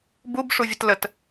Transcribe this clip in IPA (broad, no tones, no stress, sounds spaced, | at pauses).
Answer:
b u b ʂ u vʲ ə t l ə t